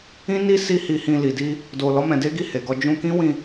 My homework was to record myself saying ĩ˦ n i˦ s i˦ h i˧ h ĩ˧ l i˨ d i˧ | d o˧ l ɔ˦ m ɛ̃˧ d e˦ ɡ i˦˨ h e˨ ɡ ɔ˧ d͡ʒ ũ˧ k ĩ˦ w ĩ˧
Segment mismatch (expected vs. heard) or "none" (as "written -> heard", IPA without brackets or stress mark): none